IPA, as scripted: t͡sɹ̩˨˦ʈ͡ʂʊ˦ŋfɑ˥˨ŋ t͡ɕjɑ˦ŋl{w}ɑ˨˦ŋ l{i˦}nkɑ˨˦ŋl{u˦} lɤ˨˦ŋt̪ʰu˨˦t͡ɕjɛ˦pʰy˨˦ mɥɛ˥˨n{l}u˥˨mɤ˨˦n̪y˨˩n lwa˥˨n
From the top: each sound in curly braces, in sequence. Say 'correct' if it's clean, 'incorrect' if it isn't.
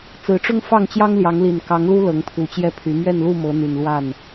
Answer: incorrect, incorrect, correct, correct

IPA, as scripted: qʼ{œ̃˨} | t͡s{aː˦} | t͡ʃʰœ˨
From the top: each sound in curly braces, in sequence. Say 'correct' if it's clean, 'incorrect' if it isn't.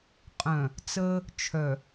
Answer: correct, incorrect

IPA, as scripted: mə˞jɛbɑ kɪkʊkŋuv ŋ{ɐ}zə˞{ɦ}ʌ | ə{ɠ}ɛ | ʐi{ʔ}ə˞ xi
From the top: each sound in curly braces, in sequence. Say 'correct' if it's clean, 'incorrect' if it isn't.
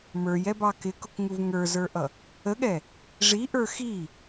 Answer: incorrect, incorrect, correct, correct

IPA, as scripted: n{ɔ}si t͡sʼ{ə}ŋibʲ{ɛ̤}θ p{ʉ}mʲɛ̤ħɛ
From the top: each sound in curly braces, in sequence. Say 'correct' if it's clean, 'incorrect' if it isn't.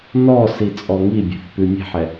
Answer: correct, incorrect, correct, correct

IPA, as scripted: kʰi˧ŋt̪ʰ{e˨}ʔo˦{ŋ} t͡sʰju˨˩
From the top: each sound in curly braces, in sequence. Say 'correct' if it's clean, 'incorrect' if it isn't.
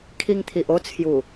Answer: incorrect, incorrect

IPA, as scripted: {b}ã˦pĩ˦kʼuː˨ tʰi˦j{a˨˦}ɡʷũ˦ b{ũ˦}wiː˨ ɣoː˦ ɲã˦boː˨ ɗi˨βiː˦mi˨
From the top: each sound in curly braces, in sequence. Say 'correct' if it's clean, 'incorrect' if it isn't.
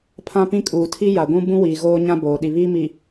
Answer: incorrect, incorrect, correct

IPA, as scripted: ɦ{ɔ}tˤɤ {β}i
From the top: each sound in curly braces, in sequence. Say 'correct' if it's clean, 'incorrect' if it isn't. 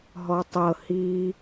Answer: correct, incorrect

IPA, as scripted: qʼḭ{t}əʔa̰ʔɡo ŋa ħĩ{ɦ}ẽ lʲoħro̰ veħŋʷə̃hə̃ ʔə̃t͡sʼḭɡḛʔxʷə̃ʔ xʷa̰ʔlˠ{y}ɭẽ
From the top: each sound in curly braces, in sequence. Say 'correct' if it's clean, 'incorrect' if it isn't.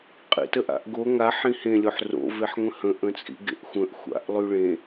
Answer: correct, incorrect, correct

